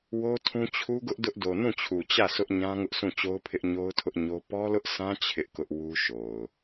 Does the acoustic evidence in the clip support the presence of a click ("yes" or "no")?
no